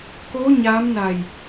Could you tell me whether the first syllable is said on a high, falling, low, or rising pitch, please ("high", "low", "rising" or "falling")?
rising